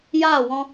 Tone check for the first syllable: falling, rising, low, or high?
falling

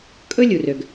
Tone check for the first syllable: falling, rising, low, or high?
high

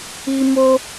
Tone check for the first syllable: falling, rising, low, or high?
high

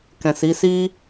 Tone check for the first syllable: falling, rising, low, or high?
low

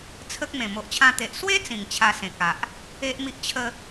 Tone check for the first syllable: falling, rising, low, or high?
high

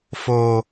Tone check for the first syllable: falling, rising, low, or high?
high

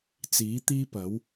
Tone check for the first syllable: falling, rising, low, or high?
rising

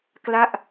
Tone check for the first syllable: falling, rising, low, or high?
falling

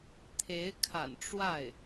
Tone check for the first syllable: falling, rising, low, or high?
rising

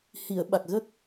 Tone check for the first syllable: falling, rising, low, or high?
low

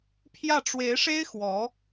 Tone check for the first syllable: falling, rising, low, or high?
falling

